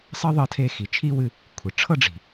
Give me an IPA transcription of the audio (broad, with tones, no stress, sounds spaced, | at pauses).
sˤ ɤ˥ ðˤ ɤ˧ tʰ e˧ x i˩ t͡ʃʰ i˥ w ɨ˧ | kʷʰ ɨ˩ ʈ͡ʂʰ ɤ˥ ɖ͡ʐ i̤˩